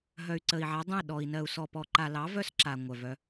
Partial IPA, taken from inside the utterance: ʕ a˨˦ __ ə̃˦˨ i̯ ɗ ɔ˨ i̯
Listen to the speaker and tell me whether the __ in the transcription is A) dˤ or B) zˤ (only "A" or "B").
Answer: A